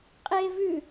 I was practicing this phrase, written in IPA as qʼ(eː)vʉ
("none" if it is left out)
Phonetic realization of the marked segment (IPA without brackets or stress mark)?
eː